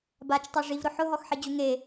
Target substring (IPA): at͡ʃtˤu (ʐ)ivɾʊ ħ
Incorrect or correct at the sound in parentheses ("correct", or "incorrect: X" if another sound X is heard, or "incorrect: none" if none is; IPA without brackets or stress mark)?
correct